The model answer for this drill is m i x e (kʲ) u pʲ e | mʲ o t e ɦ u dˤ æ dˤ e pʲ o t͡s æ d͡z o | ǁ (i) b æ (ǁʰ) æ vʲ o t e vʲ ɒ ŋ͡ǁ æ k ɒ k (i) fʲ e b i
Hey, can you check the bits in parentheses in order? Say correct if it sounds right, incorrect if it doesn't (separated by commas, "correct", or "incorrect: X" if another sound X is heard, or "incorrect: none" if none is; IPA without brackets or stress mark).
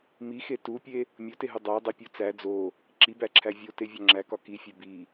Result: incorrect: t, correct, correct, correct